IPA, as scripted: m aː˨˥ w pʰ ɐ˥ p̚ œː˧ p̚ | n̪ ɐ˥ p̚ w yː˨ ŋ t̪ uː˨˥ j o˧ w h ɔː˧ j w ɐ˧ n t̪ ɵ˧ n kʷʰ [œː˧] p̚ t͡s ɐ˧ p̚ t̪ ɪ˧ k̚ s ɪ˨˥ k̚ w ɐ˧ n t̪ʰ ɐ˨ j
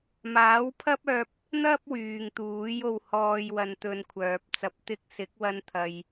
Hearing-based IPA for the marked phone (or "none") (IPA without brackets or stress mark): œː˨